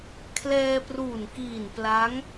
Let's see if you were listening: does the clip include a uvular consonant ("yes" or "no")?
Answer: no